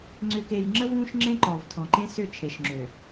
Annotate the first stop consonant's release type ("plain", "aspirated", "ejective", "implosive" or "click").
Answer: click